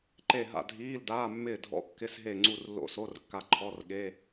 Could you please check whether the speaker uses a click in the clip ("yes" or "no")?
yes